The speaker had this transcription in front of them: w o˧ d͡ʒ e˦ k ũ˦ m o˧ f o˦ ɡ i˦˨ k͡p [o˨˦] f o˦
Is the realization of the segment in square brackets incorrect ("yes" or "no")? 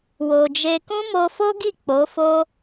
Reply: no